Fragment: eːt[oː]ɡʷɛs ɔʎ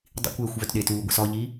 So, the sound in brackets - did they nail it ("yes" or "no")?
no